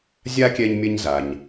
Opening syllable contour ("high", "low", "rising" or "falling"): high